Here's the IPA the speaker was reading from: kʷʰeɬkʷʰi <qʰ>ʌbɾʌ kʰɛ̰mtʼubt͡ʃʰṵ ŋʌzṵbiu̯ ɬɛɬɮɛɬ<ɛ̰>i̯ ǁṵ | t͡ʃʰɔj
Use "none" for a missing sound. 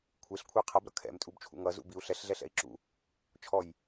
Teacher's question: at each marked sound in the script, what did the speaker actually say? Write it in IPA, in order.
qʰ, ɛ̰

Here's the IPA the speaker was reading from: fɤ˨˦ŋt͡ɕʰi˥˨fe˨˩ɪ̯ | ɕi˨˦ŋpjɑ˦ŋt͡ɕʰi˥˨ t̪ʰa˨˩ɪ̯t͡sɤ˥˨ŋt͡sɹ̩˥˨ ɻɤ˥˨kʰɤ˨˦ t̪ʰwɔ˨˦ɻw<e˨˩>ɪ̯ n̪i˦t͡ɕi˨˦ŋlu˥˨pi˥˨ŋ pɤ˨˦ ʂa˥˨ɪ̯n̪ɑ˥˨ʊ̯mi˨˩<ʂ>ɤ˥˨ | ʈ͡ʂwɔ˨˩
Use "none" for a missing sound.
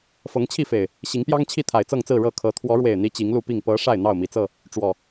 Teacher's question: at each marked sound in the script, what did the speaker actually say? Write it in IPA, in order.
e˨˩, t͡s

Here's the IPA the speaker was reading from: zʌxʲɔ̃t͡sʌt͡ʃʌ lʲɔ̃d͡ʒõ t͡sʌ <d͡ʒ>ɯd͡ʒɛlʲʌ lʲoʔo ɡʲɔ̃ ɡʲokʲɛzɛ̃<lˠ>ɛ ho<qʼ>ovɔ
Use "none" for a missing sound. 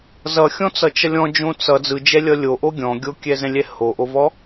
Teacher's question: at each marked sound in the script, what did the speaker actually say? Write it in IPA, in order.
d͡z, lʲ, ʔ

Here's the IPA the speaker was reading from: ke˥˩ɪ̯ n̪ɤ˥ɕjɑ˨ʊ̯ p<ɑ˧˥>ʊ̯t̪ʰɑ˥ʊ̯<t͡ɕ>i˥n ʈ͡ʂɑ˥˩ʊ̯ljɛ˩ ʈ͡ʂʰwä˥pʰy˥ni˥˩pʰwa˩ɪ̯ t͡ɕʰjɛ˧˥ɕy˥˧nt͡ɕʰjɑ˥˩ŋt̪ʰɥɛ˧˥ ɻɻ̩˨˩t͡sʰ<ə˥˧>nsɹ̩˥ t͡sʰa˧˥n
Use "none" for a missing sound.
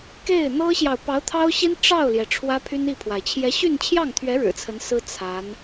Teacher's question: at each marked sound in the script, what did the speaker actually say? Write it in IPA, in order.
ɑ˧˥, ɕ, ə˧˥

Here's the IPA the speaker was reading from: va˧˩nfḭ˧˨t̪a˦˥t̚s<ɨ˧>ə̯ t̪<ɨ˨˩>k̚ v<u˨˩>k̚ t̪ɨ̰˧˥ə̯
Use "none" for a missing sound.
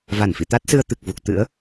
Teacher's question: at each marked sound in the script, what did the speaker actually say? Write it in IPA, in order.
ɨ˧, ɨ˨˩, u˨˩

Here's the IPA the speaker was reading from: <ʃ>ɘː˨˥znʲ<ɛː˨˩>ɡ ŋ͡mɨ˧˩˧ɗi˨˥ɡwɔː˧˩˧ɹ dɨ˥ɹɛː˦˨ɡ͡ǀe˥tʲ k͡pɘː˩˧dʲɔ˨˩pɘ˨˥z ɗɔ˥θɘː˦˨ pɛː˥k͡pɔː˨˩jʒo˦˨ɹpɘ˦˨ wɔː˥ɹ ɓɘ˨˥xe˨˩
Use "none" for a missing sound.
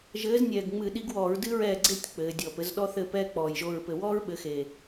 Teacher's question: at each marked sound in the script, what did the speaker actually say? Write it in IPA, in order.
ʒ, ɛː˨˩

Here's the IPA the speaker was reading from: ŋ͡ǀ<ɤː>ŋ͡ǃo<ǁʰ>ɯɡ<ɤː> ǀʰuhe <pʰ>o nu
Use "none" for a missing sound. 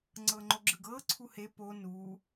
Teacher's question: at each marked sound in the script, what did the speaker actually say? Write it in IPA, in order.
ɤː, ɡ͡ǁ, ɤː, p

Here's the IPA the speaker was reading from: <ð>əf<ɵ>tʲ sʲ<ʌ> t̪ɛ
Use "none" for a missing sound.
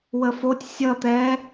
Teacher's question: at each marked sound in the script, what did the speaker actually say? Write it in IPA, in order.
w, o, ʌ

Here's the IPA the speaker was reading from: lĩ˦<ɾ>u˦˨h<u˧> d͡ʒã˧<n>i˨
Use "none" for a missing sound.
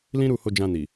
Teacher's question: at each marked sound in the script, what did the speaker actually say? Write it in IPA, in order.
ɾ, o˧, n

